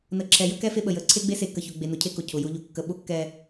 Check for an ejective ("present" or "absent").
absent